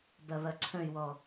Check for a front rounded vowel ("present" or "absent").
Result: present